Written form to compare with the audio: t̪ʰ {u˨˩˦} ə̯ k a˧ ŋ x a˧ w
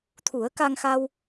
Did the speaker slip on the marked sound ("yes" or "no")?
no